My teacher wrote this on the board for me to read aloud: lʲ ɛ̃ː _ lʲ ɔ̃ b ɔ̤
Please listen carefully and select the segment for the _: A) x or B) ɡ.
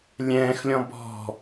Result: A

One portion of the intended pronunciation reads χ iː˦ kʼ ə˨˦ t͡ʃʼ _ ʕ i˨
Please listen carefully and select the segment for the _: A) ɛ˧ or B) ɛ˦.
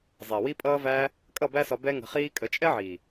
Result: B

